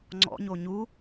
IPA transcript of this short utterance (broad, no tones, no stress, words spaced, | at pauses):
ŋ͡ǀɔ̰ɲo ɲu